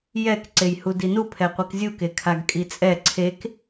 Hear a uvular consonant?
yes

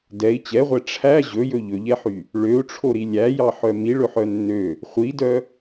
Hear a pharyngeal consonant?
yes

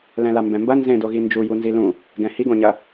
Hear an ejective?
no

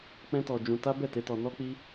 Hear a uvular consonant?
no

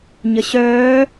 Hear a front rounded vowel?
yes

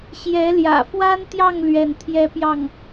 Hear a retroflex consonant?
no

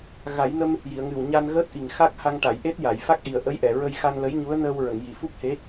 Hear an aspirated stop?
no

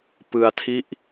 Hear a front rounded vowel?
no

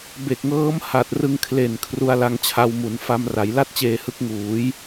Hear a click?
no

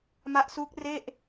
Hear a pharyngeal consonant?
no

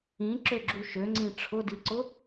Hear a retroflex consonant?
yes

